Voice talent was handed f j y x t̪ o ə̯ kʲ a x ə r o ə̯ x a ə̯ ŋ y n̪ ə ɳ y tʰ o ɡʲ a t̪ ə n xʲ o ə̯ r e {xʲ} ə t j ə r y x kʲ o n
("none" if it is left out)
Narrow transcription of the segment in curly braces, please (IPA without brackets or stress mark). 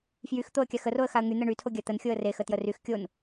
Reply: x